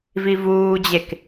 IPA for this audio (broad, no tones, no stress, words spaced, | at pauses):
vivuːd͡ʑek